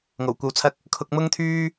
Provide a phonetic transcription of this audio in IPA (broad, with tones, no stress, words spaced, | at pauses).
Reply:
ŋo˨˩wkʷɐ˧wt͡sʰɐ˥k̚ | kʰʊ˧k̚mʊ˥ŋt̪ʰyː˥